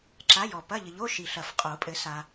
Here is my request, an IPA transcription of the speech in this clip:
ǁ a˧˥˧ j ɔ˨ p ɐ˧˥˧ ʎ ɘ˨ ʎ o˧˥˧ ʃ i˨ ɬ ɐ˨˩˦ f qʼ o˨˩˦ pʼ ɘ˨˩˦ s a˨

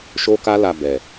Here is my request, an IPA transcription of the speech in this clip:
ʃ o˦ k a˦ l a˧ b ɛ˨

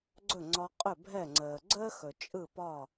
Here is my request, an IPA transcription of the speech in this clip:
ɡ͡ǀ ɵ˥˩ ŋ͡ǀ ɒ˧ qʼ ɵ˥˩ bʱ ɛ˥˩ ŋ͡ǀ əː˩ ɡ͡ǀ əː˥ x ɵ˩ t͡ʃʼ ɯ˥˩ p ɒ˥˩

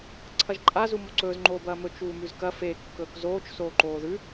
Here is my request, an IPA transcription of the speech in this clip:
ǀʰ ɐ ʒ ǃʼ a z u m o ǀ ɵː z ŋ͡ǃ oː b ɐː m ɵ t͡ʃ uː m ʉ z k ɐ f e kː ɵː k z oː t͡ʃ s oː ǃ oː ð ʉ

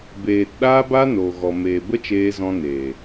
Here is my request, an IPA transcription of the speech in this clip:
b eː˨ t ɗ aː˦ b a˦ n oː˨ ɣ ɔ˨ m eː˨ b ə˦ t͡ʃ eː˧ z ɔ̃˧ n e˨

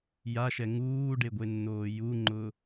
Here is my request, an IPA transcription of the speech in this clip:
j a ʃ ɛ ŋ uː ɖ e ɡʷ e nː oː j u ŋ͡ǃ ʊ

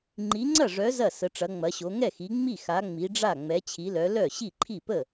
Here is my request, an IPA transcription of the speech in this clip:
ŋ͡ǃ i˨˦ ŋ͡ǀ ɐ˥˩ ʐ œ˨˦ z ɐ˥˩ s ə˨˦ ʈ͡ʂ ɐ˨˦ ŋ͡m ɐ˨˦ ɕ o˨˦ ŋ ɛ˥˩ x i˨˦ ŋ͡m i˥˩ x a˨˦ ŋ͡m i˨˦ ɖ͡ʐ a˥˩ ŋ͡m ɛ˨˦ t͡ɕʰ i˨˦ l œ˨˦ l œ˥˩ ɕ i˥˩ ǃʰ i˥˩ p ə˥˩

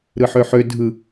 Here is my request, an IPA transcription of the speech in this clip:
ɾ ɯ ħ ø ħ ø dʱ ɯ

